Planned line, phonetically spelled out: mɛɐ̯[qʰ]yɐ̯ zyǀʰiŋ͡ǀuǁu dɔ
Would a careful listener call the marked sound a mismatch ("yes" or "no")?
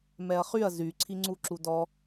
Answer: yes